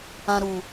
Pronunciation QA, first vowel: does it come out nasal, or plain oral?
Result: nasal